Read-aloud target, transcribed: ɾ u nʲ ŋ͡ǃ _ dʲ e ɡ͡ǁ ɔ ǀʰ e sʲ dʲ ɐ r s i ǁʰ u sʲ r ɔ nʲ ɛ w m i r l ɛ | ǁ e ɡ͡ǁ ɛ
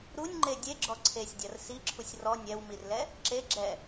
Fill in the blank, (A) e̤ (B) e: B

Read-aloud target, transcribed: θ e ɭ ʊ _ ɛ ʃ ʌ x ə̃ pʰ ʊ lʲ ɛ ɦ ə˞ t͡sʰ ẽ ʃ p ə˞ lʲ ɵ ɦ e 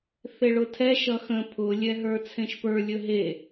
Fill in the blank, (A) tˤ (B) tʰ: B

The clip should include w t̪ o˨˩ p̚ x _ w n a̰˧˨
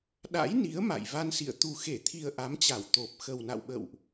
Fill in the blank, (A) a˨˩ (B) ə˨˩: B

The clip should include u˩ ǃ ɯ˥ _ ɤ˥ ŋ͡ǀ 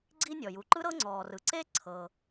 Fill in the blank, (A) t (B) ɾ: B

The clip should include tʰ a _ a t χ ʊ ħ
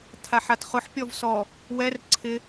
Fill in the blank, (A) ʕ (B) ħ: B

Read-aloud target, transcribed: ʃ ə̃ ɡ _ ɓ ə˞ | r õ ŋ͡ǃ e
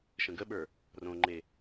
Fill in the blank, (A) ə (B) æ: A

